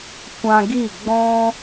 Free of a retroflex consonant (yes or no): yes